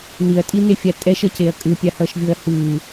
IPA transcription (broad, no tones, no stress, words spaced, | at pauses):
niɐ̯tʼinefʲa tʼɛʃʌceɐ̯ kʼɯpʲahʌːʃvʲoɐ̯ hɯː